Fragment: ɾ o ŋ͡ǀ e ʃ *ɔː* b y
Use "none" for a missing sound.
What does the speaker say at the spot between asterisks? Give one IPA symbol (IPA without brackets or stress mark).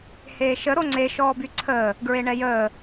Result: ɔː